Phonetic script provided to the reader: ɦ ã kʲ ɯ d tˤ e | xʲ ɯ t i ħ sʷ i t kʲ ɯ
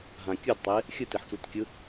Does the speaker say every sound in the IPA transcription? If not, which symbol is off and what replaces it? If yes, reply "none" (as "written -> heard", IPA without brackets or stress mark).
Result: none